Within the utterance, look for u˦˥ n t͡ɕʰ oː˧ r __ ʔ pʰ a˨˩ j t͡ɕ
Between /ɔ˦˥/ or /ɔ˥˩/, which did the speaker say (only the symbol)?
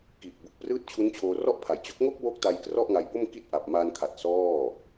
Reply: ɔ˥˩